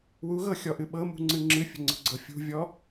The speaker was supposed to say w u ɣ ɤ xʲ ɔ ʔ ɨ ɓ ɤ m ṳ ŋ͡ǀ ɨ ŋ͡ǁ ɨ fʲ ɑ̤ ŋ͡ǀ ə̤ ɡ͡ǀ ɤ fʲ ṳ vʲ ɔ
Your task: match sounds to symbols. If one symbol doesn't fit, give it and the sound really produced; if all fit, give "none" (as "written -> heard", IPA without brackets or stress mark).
ɑ̤ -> ə̤